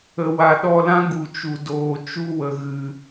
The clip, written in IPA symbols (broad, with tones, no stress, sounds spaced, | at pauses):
ə˨ w a˨ ɗ ɔ˧ l ã˦ ɡ u˨ t͡ʃ u˨ d oː˨ t͡ʃ u˦ w ə˨ ɣ ɨ˨